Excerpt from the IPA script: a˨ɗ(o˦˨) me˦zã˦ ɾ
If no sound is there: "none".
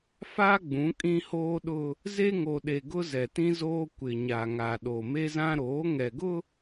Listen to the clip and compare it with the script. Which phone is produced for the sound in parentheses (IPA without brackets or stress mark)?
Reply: o˨